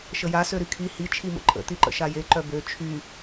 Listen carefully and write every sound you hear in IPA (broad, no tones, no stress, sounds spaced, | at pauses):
ʃ ə j a s ø ɾ y kʰ i h i t͡ʃʰ i m ə̰ ǃʼ ə̰ t̪ i ǃ ə̰ ʃ a j e ǃ œ b ø t͡ʃʰ y